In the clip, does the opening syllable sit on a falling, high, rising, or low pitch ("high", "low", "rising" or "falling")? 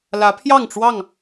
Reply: rising